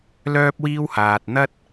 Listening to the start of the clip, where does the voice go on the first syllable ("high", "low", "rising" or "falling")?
high